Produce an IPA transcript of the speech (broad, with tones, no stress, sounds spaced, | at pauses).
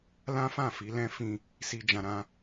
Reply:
l ã˦ f ã˦˨ f i˨˦ l ɛ̃˦ f ĩ˧ | s i˦ d͡ʒ ã˧ ɾ ã˦